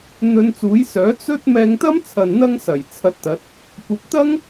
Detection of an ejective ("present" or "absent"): absent